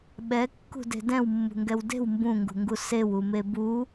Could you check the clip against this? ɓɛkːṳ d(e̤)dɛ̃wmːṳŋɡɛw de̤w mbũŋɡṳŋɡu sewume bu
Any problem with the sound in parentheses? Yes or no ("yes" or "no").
no